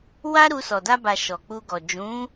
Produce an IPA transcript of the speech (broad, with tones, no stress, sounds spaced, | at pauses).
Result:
w a˦ ɾ u˧ s ɔ˨ d a˧ b a˨ ʃ ɔ˨ k͡p u˧ ɡ ɔ˨ d͡ʒ ũ˨˦